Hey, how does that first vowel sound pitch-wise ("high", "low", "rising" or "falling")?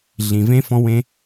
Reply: low